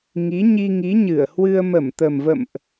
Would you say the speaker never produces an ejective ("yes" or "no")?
yes